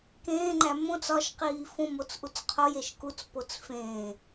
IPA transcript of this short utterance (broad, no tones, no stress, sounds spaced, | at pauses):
k ẽː ŋ͡ǃ æ m õ t͡s ɒ ʃ q iː f õ m o t͡s ʔ u t͡s qʰ o j e ʃ k u t͡s p o t͡s f ẽː